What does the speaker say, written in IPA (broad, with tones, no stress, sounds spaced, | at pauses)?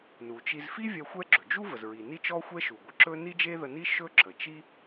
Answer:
n u˩ t͡ʃ i˧ z f i˥ vʲ ɛ˧ xʷ ɛ˥ ɡ͡ǁ ɵ˩ d͡ʒ u˥ v ə˩ z ɹ i˩ n i˥ t͡ʃ ɔ˥ xʷ ɛ˥ ʃ u˩ ɡʷ ə˩ ǁ ɵ˥ n i˥ d͡ʒ e˥ ð ə˧ n i˥ ʃ ɵ˥ ǁ ə˩ t͡ʃ i˥